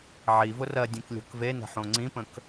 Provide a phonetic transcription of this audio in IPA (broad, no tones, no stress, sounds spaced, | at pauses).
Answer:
ʕ i v ʊ r ɜ dʲ ẽ k lʲ o̤ k v e n ə̤ ħ õ ŋ͡ǀ ĩ p ə̃ k